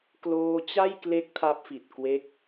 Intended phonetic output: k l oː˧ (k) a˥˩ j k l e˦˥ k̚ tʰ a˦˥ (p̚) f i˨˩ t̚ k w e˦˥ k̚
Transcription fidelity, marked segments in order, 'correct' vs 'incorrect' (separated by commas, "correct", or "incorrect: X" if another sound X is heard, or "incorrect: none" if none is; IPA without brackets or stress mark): incorrect: t͡ɕ, correct